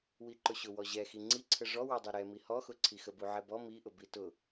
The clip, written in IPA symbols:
wiǃʊɕʊ wɔʑɛxi ŋ͡ǀiǀʰə ʐɔwɔdˤɛ ɾɛmi hɔxʊǀʰi xəbuʕɛbɔ miʔʊ bitʊ

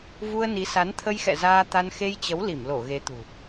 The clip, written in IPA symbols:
vu˧ə̯ni˨˦sa˨˦n t̪ʰə˧jxɛ̰˧˨ zaː˧t̪a˧n xe˧jt͡ɕə˨˦w li˧˩mlo˧˩ ɣe˨˦t̪ṳ˨˩

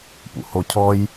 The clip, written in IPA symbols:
pṵhocʰɔj

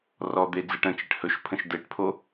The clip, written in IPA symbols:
rɔd̪e d͡zeʈə̃t͡ʃeʈ hɵʃpʰə̃ʃ deʈpʰo

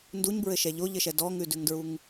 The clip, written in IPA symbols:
nduɲbɹɘʃɛ ʎoʎɘʃɛ dɔŋʉdʉŋdɹuŋ

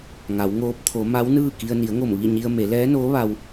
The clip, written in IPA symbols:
ŋa˩˧wŋoː˧˥p̚ t̪ʰo˩˧ ma˧˥wnɯː˥˨ki˧ə̯ ni˩˧ə̯ŋo˧˩m ʋi˥˨ɲi˧ə̯ me˩˧lɛː˧˥noː˧˥ ʋa˧w

